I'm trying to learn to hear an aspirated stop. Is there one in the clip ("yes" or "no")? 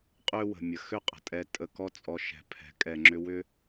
yes